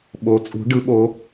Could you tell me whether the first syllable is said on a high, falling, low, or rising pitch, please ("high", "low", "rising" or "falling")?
rising